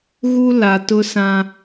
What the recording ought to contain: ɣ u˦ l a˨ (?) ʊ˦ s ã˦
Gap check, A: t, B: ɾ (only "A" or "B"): A